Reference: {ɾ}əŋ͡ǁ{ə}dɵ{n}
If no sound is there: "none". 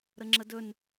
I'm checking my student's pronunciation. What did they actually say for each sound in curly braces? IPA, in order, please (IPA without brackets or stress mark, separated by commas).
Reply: ɾ, ə, n